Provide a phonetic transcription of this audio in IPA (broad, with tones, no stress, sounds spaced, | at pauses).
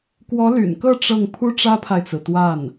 k w ɔ˧˥ l y̰˨˩ n k ɤ˥˧ ʈ͡ʂ ɤ˥˩ ŋ pʰ u˥ ʈ͡ʂ ä˥ pʰ a˨ ɪ̯ t͡s ɹ̩˩ t̪ w a˥˩ n